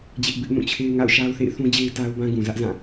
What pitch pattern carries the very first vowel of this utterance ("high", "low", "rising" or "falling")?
high